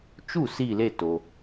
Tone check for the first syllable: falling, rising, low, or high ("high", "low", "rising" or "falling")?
falling